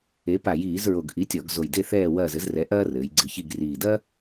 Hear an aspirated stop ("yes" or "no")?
no